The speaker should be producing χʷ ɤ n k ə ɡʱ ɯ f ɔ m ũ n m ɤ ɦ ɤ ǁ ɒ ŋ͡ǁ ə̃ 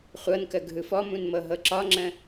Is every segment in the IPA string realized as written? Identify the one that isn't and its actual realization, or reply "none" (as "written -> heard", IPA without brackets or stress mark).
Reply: none